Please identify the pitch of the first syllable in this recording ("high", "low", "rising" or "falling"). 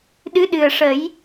rising